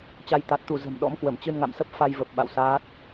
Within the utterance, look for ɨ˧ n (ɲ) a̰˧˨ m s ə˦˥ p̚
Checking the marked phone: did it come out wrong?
yes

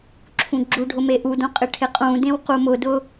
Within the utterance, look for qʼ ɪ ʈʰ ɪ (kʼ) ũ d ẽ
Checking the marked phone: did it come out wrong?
yes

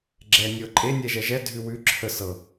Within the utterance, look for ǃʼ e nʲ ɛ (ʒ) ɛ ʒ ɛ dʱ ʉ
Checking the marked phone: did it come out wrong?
no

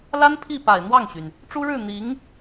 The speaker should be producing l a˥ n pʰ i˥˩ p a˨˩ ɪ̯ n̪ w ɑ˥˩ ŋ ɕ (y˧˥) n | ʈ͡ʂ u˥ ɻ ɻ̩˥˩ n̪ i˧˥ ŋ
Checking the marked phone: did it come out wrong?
yes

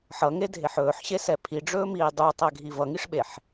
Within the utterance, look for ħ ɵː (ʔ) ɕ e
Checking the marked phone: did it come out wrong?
yes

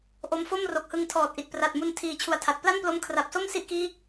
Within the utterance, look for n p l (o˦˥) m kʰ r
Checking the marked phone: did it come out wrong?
no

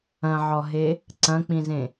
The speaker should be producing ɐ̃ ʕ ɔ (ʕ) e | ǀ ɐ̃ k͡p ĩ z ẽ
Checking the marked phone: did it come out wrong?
yes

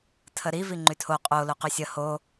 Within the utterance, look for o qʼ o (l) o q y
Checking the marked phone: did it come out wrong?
no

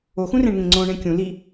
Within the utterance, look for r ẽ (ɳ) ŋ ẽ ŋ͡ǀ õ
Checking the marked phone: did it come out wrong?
no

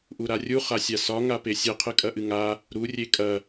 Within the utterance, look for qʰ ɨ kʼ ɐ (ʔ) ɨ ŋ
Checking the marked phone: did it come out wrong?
no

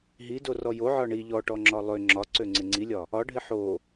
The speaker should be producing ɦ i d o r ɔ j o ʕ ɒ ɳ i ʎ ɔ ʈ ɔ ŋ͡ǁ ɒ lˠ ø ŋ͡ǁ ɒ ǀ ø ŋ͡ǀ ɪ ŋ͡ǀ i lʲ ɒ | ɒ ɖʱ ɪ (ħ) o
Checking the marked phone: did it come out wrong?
no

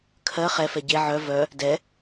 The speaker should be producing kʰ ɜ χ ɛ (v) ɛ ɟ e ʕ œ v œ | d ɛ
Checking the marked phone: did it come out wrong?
yes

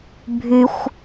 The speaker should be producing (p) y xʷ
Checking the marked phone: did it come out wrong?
yes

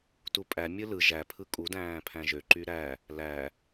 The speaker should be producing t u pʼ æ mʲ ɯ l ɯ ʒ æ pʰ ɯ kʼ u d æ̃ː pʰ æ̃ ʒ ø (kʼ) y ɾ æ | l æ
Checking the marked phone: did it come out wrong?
yes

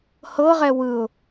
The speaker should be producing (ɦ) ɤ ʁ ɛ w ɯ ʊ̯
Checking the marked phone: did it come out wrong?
yes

